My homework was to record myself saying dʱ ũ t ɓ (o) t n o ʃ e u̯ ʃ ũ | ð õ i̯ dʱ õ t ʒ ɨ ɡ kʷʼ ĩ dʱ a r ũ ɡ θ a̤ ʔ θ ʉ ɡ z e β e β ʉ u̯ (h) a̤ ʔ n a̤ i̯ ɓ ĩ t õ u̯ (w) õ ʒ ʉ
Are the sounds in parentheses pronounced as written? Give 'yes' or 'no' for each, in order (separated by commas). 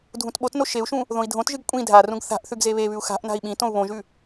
yes, no, no